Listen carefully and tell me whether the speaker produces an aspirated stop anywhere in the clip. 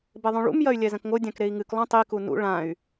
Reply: no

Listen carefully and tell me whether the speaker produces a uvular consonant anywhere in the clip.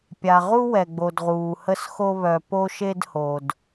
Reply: yes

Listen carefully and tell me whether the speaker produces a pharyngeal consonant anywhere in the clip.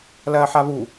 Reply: yes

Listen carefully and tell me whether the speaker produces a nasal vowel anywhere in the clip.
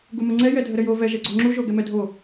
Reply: no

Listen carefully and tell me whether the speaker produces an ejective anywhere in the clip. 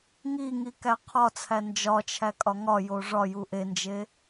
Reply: yes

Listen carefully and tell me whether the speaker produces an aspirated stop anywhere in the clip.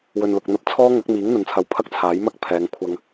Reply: yes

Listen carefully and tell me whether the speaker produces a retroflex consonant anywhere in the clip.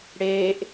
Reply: yes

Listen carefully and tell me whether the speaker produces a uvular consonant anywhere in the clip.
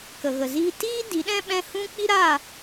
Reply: no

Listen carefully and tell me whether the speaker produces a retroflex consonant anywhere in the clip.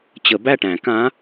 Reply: yes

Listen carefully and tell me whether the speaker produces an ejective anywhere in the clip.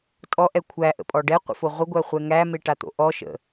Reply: yes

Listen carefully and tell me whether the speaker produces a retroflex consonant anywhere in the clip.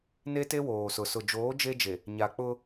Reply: no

